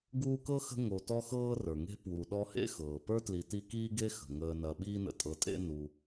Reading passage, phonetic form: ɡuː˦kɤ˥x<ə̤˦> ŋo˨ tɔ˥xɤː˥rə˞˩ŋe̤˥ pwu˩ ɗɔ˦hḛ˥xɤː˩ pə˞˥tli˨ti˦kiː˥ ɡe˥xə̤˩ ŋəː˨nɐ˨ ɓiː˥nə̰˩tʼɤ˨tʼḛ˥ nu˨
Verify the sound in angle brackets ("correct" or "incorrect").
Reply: correct